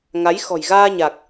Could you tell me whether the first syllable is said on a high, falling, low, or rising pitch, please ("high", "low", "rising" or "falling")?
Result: rising